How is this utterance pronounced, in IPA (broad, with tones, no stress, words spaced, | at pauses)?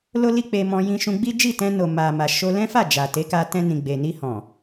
lo˦li˦k͡pe˧mɔ̃˧ jĩ˧ʃũ˧ɡ͡bi˦ d͡ʒi˦˨tɛ̃˧no˨ ma˨ma˨ ʃo˧lɛ̃˦fa˦˨ d͡ʒa˨ te˨˦ka˧tɛ̃˧ nĩ˨ɡ͡be˨ ni˧hɔ̃˨